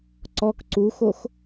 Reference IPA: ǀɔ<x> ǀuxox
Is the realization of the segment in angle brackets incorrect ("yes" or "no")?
yes